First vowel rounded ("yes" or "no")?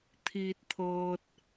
no